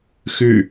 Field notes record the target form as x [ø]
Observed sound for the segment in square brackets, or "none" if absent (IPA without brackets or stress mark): ʉ